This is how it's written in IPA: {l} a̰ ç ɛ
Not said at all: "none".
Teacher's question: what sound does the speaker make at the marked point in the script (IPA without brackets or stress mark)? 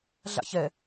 ɮ